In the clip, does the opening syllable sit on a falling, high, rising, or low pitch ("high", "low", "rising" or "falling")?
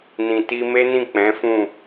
low